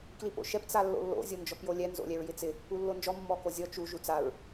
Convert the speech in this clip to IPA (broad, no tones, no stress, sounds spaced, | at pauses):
k l i p o̰ ʃ ɛ p t͡s a lː o̰ lː o̰ zʲ o n d͡ʒ ɔ p j o lʲ ɛ n z o̰ lʲ ɛ ɹ j ɪ t͡s ɪ | u lː o n d͡ʒ ɔ mː ɔ k o zʲ ɔ t͡ʃ u ʒ u t͡s a ɹ